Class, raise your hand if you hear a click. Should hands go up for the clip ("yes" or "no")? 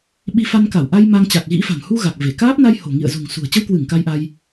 no